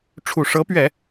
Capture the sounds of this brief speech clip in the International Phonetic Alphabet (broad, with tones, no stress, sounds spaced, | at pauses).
ʈ͡ʂʰ u˨˩ ʂ ɤ˧˥ p ɥ ɛ˨˩˦